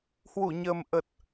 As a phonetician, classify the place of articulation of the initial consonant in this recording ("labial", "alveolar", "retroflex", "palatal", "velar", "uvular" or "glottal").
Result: glottal